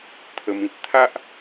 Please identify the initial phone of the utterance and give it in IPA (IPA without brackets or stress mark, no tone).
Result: t̪ʰ